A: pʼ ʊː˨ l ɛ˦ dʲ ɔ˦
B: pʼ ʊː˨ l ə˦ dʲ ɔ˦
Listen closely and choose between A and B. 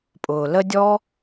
B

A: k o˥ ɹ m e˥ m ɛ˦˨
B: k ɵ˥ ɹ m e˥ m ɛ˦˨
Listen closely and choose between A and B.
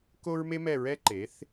A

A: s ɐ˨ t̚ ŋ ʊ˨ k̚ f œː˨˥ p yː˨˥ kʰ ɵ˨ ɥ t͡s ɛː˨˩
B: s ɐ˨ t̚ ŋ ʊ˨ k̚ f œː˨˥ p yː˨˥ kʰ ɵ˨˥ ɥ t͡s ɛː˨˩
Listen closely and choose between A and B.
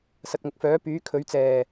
B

